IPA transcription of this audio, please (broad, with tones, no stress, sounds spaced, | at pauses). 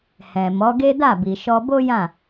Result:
h ɛ̃˨ m ɔ˨˦ ɡ e˦ d a˦˨ b i˨ ʃ ɔ˧ b o˦ j ã˦˨